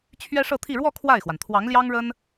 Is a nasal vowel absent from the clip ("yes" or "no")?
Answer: yes